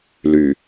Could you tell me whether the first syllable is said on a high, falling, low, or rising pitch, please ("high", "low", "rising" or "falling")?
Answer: low